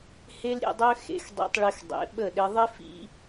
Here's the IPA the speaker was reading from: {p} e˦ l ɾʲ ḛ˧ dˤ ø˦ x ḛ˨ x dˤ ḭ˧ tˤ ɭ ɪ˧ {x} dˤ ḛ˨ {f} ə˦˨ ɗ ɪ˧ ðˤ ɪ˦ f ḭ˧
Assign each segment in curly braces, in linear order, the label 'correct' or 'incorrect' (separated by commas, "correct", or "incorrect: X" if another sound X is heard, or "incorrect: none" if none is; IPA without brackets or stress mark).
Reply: incorrect: h, correct, incorrect: ɓ